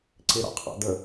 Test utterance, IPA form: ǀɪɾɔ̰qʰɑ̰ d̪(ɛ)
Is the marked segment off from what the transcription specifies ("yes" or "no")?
yes